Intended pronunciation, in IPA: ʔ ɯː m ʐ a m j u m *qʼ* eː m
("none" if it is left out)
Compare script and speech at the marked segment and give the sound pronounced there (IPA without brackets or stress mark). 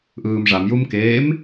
k